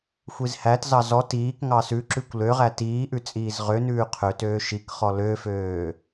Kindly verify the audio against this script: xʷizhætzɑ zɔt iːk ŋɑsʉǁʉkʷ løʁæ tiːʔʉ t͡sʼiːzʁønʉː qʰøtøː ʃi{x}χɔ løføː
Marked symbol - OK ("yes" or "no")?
no